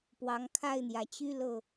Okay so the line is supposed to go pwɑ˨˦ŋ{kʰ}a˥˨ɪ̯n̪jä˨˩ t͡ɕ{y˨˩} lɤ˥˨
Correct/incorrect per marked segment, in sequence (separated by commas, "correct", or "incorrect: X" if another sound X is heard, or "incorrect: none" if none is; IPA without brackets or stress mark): correct, incorrect: y˦